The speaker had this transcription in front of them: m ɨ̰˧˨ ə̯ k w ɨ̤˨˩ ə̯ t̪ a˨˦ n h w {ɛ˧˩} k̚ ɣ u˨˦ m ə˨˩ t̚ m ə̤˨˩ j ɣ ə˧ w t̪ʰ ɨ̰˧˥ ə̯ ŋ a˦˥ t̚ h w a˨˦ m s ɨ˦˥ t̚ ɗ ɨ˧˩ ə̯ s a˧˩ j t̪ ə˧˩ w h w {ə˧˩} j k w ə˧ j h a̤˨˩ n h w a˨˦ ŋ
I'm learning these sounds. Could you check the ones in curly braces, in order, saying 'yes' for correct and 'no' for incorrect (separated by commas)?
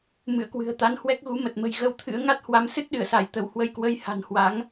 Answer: no, no